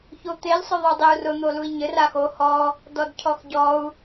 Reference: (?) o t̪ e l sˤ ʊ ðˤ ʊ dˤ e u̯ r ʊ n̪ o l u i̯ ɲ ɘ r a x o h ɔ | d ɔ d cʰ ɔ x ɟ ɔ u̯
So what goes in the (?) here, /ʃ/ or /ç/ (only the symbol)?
ç